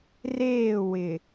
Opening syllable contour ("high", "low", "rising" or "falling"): falling